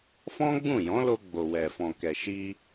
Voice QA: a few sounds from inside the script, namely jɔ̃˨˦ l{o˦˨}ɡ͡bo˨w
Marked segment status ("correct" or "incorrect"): incorrect